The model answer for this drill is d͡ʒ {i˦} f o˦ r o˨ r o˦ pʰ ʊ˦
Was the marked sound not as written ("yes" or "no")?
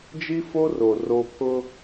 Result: no